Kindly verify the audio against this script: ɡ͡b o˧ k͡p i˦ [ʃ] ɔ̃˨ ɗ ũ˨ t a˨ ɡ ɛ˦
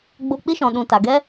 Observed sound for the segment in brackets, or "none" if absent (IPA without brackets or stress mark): ʃ